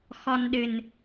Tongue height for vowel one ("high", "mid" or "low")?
mid